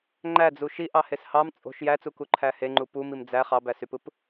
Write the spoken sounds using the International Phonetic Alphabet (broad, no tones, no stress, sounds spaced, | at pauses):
ŋ͡ǃ æ d͡z u ʃ i ʔ ɑ h e s h ɑ m t͡sʼ o̤ ʃ j æ t͡s u k u ǃʰ æ h e ŋ͡ǃ u p u m i m d͡z æ χ ɑ b æ s y p ɯ p